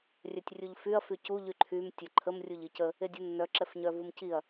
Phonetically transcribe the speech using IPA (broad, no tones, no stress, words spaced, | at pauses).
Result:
rʲœtʲrʲuʎfyɐ̯ fycu ʎyǃʰym tʲœǃʰəm rʲuʎicə | edʲunːœ ǁɛfɲœvumciɐ̯